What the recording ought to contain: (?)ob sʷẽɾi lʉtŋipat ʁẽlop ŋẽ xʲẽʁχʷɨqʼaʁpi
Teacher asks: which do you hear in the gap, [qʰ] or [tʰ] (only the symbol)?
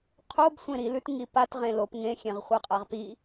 qʰ